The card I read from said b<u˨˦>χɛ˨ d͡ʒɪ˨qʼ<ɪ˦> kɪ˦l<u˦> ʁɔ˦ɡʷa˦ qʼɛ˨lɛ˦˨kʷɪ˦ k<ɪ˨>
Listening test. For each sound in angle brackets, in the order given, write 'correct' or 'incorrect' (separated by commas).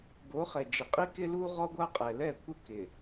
incorrect, incorrect, correct, correct